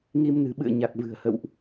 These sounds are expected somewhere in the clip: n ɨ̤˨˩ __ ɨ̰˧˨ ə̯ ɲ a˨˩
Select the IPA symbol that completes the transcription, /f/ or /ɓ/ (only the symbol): ɓ